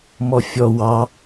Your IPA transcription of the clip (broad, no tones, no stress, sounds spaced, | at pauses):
m ɔ fʲ ɔ w ɑ